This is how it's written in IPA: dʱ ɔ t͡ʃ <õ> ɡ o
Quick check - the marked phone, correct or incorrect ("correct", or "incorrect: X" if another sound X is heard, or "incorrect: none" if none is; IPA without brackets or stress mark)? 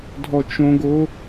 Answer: correct